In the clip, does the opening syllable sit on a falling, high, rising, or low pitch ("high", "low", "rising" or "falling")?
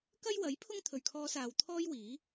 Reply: high